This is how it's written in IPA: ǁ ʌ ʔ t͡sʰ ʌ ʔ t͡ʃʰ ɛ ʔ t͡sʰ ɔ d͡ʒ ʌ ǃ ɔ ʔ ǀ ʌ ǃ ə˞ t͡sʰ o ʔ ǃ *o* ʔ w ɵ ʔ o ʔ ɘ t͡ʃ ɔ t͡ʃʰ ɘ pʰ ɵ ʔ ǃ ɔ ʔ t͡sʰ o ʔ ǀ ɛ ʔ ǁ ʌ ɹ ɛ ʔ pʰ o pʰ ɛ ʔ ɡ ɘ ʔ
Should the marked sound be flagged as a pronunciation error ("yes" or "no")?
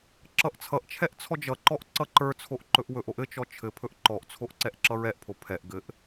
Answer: yes